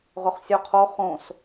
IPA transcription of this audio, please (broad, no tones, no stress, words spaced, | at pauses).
ʁʊχsʲo qʰo χõs